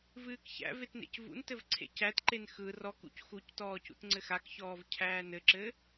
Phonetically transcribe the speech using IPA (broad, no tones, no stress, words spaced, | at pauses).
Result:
vɨːkçæ̰vet nḛcvṵntɘv ǀʰḛcætǃen xɯ rɔkṵc xuctɔː cṵtŋ͡ǀɘxakçɔːv cʰæːnɘǁɘ